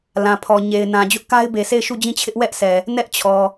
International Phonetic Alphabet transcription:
lã˨pʰɔ˨ ɲe˨ɪ̯nã˨ d͡ʑʊ˦ʔka˦ɪ̯ be˨sʰe˦˨ɪ̯ʃu˦˨ d͡ʑĩ˦˨t͡ɕʰɪ˦ʔ wɛ˦ʔsɛ˨ | nɛ˦ʔt͡ɕʰɔ˨

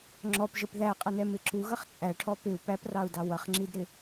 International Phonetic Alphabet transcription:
ŋ͡ǁɔpʒəp ðæqʼʌnɛmɪ ǁuɣʌχ t͡sʼæʈʰɔ pɪu̯ pæprɑu̯dɑ wʌχŋ͡ǁidɾɪ

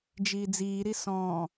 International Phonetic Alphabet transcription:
d͡ʒiːd͡ziːɾi sɔ̃ː

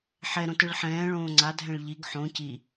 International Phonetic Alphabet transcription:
ħɛɾõ tɯɭħɛ̃ː ɭõːŋ͡ǀadʱɛ̃ɭ ʎiɡ ħõ ci

